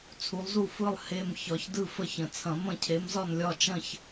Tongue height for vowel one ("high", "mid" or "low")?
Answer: high